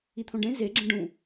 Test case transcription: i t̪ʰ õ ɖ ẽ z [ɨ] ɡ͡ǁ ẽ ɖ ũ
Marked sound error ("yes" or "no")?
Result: yes